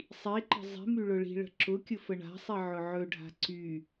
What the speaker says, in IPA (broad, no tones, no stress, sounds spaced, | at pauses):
sˤ i ǃ ə̤ zˤ i̤ m y ɭ ʊ ɭ i̤ ɭ ə̤ ǁ ʊ kʲ ʊ f ə ɳ a̤ sˤ i ʕ ʊ ʕ ɵ ɖʱ a̤ ǀ y